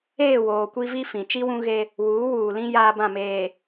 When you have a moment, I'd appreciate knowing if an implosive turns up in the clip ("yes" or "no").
no